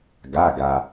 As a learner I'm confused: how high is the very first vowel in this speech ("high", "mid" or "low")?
low